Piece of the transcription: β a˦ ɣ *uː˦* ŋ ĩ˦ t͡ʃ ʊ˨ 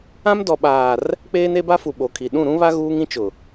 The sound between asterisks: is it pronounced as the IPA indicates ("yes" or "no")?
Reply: yes